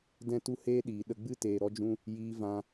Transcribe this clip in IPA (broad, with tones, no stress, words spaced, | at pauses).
dɛ̃˦tu˦heː˦ɗiː˨ ɗə˧ɡ͡bɨ˦teː˨ ɾɔ˧d͡ʒũ˧ | jiː˧vã˧